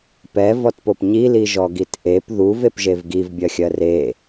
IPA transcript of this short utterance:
pɛvɔtpop ɲiliʒɔ ɡitʔep ðuv epʒevɡiv bʲɜxʲɜre

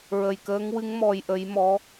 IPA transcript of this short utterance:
ɹə˨˩jkəː˧˥ŋwɨ˧˥ŋ mɔ˧jʔə˧˥j mɔ˧˥

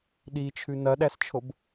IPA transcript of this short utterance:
ɗit͡ʃʰʉ nɐɗæst͡ʃʰob

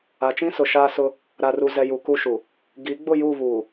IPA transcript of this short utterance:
a˨t͡ʃĩ˦sʊ˨ ʃaː˦sʊ˦ | ɾa˨ru˨zɛ˨ ju˨ku˦ʃu˨ | ɡi˨˦ɡ͡bʊ˦˨ ju˦˨βuː˨

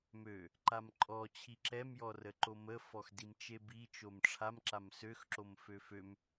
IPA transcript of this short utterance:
mø | ǃamǃʼɔ t͡ɕʰiǁɛm jɔrəǃomə fɔxdimt͡ʃebi t͡ʃomʈ͡ʂʰam ǁamsøx ǁomføføm

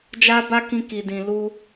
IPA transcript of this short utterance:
d͡ʒa˦ba˦kĩ˧ ki˨ dĩ˨lu˧

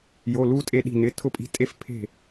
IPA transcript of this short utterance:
jo˩˧˩lu˧ tʼe˧ɗi̤˧˩nɪ˩˧˩ tʰʊ˧˩pʼi̤˧˩tʼe˧f pʰe̤˧˩

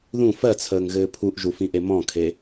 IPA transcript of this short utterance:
ðũ fɜt͡sʰəːŋɣɘː pʰuʔʒufĩʔe mɔ̃kʰe

